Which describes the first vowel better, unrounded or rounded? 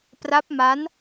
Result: unrounded